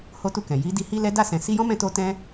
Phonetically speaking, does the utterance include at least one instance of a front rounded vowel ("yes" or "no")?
no